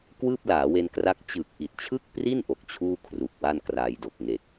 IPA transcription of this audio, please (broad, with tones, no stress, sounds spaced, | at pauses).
k w ɯː˥˩ p̚ l aː˩˦ w e˧ n k r a˦˥ k̚ t͡ɕ ɯː˨˩ k̚ ʔ i˨˩ t̚ t͡ɕʰ ɯ˥˩ k̚ p r i˥˩ n ʔ o˨˩ k̚ t͡ɕʰ uː˥˩ kʰ r u˨˩ k̚ w a˥˩ n k r a˧ j d o˨˩ k̚ ŋ e˨˩ k̚